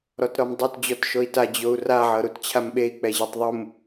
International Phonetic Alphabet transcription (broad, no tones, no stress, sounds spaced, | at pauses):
ɾ ɔ t ɾ ɔ m dˤ u t d͡ʑ ɔ t ʃ o i̯ t a d͡ʑ o u̯ r a ʕ ɤ ɾ u t t͡ɕʰ a m ɓ e i̯ k͡p ɛ ʑ e tˤ ðˤ u m